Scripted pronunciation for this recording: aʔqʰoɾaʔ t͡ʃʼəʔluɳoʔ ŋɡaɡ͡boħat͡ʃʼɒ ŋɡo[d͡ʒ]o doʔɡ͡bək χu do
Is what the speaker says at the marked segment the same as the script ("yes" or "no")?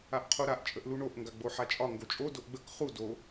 no